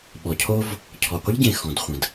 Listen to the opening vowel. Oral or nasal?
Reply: oral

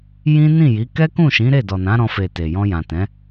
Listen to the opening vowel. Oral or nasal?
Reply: nasal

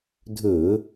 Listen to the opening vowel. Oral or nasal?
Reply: oral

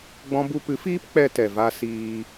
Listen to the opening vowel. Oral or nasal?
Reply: nasal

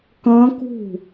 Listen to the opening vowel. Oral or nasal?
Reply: nasal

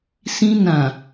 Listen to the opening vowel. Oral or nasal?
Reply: nasal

